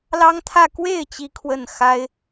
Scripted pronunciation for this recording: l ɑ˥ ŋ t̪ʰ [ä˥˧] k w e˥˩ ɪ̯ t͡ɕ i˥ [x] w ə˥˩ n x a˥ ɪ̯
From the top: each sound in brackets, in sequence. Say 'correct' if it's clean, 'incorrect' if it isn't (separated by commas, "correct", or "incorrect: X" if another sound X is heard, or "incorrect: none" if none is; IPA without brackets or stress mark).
correct, incorrect: kʰ